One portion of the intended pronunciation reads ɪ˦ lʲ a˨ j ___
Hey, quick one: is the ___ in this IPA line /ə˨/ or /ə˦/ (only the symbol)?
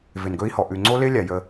ə˦